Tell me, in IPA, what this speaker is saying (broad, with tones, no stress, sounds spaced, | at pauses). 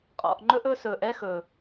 qʼ ɔ̰˨ ʔ ŋ͡ǃ ɵ˦ ʔ ɵ˦ s ɵː˨ ʔ ɛ˦ x ɵ˨